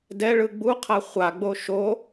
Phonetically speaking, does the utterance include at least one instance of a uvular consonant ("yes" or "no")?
yes